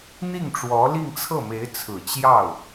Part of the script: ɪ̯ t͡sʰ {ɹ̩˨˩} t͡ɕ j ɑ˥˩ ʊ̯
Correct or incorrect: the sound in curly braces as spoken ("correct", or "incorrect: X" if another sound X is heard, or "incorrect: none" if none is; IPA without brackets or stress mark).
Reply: correct